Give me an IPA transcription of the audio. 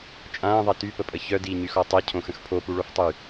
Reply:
t͡ʃʼ ãː ðˤ ɛ t y p ə pʼ ə ç œ d iː ɲ y x ɔ tˤ e cʰ õ x ə̃ x pʰ o p u ɭ o f tˤ y

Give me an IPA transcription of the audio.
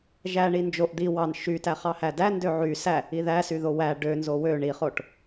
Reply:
ʒ æ ɳ i n d͡ʒ o ʔ d̪ i w ɑ n ʃ y t æ χ ɑ h æ d æ n d ø ʕ y s æ | i ð æ s y ð o w æ ɖ ø n z o w ø ɳ i χ o ʈ

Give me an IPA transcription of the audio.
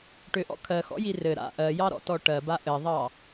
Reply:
ʈ ʏ ʔ ɔ̰ kʰ ɜ x ɔ̰ j i r ɘ ɾ a̰ ʔ ɜ j ɑ ɾ ɔ̰ t ɔ ʈ ɜ b a ʔ ɘ ðˤ ɑ

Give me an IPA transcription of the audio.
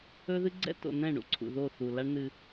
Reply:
ɵ˦ ð ɨ˦ ɡ͡ǀ ɛ̰˦ t o̰˨ n ɛ̃˦˨ ɳ ṵ˨ ǀʰ ṵ˨ ð o˦˨ θ u˨ l a˦ ɳ n ɨ˦

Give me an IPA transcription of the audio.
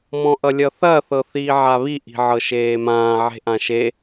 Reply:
m ɔ̃ ʔ ʌ lʲ ʌ θ ɐ θ ɤ θ iː ʕ a β i ʔ i̤ ʕ ɤ ʃ eː m ãː ʕ e̤ ʔ ã ʃ e

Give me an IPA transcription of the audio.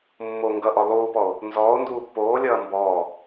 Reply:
mː o ŋ ɡ ʌ ʔ ɔ lˠ u p ɔ o̯ | n z ɔː o̯ n d uː pː oː lʲ ʌː m b ɔː

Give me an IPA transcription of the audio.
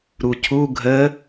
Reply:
ɾ u cʰ u ɡʱ ə

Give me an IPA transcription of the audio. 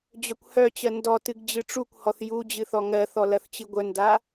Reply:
d͡ʑ œ kʷ h œ t͡ɕ ɜ n d ɔ t ɨ ɡ d͡ʑ ɨ ʈ͡ʂ u kʷ h ɔ θ j u d͡ʑ ɨ θ ɔ ŋ ɜ θ ɔ l ɐ θ t͡ɕ ɨ ɡʷ œ n d a

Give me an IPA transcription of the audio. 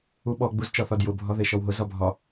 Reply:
u ɓ ɔ ɡ͡b u z t͡ʃ ɒ θ ɒ d j ʊ bʱ ɒ ð e ʃ ɔ w ɦ ʊ z ɒ bʱ ɒ

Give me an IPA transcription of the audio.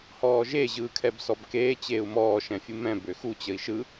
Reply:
h ɔː ʒ e ʑ ɯː kʰ ɛ b s ɔ b k eː t͡ɕ eː u̯ m ɔː ʃ ɛ̃ fʲ ɯ m ɛ̃ b ø x u t͡ɕ ə i̯ ʃ ɯ

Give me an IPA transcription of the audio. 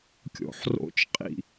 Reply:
kʲ o̰ ħ r o̰ t͡ʃ qʼ ḭ

